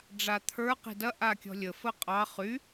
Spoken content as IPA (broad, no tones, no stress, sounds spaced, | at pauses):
ɖ͡ʐ a t̪ʰ ə˞ q i̤ d ɐ ʔ a kʲ ɔ̤ lʲ ə f ə qʼ ɑ χ y